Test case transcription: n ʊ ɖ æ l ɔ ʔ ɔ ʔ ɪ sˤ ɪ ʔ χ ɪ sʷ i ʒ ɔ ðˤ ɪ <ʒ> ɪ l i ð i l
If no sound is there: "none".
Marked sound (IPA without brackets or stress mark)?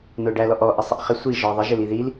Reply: ʒ